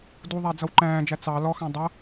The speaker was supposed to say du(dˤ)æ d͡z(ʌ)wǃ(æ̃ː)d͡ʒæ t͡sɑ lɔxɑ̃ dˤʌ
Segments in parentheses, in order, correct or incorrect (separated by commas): incorrect, correct, correct